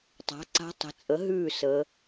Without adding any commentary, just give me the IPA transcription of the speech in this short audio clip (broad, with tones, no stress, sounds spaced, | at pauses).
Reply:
tˤ a̤˩˥ ǀ a̤˧˥ tˤ ə̤˩˥ t͡sʼ ə˩˥ ɦ ʉː˥˩ s əː˩˧